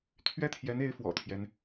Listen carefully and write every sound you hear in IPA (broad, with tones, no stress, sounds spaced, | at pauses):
t̪ʰ ɥ ɛ˥˩ t̪ʰ j ɛ˧˥ n e˧˥ ɪ̯ f w ɔ̰˨˩ t̪ʰ j ɛ˦ n